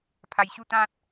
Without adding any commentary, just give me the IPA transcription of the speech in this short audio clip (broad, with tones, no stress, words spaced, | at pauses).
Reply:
pʰa˧jɕu˦t̪ã˦t̚